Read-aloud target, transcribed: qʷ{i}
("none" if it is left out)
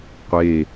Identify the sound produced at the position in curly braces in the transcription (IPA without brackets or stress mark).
e